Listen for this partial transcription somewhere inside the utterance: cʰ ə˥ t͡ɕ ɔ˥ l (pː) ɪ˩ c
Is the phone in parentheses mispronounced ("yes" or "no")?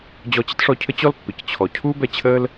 no